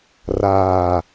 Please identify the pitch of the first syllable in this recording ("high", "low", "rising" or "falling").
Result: low